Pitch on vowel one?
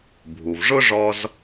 low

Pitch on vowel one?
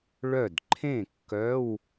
falling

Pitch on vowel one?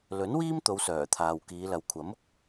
rising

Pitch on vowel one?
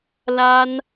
high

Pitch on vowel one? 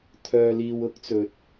low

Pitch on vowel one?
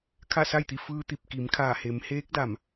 falling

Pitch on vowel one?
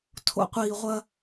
low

